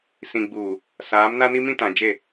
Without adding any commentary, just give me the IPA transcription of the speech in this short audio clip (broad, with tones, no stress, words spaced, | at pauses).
sĩ˨ ɡ͡buː˨ | saː˨˦mna˦ni˦mĩ˦ tã˨ d͡ʒe˦˨